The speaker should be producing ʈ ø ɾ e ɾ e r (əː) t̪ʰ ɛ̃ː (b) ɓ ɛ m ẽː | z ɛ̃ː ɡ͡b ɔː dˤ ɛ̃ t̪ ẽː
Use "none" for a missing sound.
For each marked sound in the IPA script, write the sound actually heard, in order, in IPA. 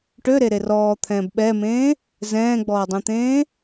ɔː, b

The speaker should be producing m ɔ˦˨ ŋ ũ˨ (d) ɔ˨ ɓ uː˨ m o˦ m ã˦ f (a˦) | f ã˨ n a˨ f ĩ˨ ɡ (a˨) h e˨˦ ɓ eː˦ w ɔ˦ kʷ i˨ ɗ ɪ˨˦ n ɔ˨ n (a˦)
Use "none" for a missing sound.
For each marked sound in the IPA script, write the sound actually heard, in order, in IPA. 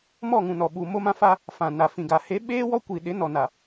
n, a˦, a˨, a˨

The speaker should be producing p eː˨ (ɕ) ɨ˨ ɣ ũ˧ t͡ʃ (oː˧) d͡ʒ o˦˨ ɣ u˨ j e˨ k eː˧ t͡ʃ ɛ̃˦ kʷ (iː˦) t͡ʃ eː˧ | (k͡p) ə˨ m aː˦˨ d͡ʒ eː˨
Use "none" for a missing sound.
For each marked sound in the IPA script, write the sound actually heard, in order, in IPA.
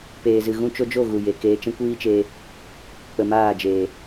z, o˧, iː˦, k͡p

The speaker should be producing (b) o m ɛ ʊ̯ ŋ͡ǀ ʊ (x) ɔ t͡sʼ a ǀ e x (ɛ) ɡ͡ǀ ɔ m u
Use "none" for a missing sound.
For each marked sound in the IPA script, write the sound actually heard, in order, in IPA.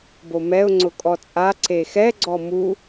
b, kʼ, ɛ

